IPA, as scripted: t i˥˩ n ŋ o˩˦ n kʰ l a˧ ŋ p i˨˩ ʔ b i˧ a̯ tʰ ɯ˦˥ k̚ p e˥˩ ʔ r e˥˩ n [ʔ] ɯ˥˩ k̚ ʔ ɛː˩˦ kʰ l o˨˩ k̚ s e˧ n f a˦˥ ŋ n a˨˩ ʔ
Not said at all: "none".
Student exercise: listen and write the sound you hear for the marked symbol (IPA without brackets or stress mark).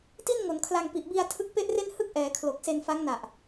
h